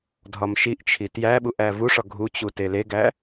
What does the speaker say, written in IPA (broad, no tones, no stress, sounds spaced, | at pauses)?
dʱ ɒ m ʃ i ʔ t͡ʃʰ i t j æ ɓ u ʔ æ v u ʂ ɒ ɡʱ u t͡ɕ u t e l e ɡ æ